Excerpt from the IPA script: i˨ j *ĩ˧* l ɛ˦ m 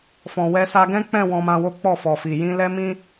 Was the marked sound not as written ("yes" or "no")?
no